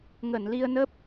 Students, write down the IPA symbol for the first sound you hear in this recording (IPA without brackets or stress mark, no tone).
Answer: ŋ